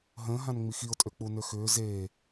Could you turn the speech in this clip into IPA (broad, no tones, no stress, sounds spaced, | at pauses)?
ɦ ə̃ː ɦ ã n ŋ͡m i x i ʊ̯ tʼ ø k͡p u n ø x ʏː z eː